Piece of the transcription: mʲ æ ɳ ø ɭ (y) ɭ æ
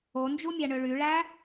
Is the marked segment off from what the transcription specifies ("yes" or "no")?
no